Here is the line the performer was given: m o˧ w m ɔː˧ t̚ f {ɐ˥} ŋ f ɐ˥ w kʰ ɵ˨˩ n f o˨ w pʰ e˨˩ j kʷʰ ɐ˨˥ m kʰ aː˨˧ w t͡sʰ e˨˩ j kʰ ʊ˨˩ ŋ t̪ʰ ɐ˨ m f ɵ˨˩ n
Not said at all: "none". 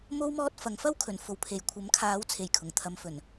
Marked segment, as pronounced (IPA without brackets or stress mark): ɐ˨˧